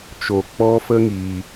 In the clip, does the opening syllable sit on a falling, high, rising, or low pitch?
low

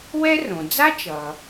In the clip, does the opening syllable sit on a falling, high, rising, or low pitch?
high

